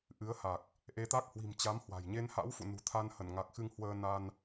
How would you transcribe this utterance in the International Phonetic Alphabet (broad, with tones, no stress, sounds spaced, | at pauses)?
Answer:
ʔ ɨ˨˦ ə̯ h a˨˩ k̚ | ʔ e˨˦ t̪ a˦˥ k̚ h w i̤˨˩ m t͡ɕ a˨˦ m h w a̤˨˩ j ɲ e˧ n h a̰˧˥ w f ṵ˧˨ n ṳ˨˩ t̪ʰ a˧ n h ə˧˩ n ŋ a˨˩ k̚ x ɨ˧ ŋ h w əː˧ n a˧ n